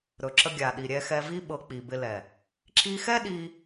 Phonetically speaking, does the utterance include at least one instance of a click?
yes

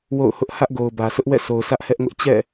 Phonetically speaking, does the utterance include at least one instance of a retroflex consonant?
no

